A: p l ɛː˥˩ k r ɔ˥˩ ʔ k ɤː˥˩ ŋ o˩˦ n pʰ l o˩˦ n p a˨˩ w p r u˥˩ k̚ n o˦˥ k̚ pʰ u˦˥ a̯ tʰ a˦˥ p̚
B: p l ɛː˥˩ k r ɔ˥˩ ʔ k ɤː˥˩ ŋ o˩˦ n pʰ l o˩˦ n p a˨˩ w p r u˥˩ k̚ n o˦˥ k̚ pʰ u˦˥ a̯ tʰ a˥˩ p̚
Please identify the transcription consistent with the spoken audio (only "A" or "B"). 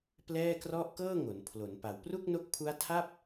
B